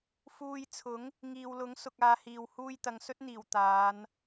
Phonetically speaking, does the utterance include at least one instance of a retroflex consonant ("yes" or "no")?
no